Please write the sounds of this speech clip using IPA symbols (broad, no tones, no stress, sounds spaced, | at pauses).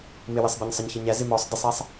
m ɪ w ɪ sˤ b ɪ ɲ sˤ ʌ ɲ ç ʌ ɲ æ z ɪ m ɔ sˤ d ɪ sˤ æ sˤ